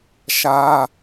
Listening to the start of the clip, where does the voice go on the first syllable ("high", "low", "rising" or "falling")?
high